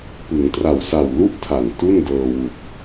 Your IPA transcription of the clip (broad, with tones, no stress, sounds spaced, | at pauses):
p ɯ˩˦ ŋ t r a˨˩ w s a˨˩ w l u˥˩ ʔ tʰ a˨˩ n t u˥˩ n d ɤː˧ w u˨˩ k̚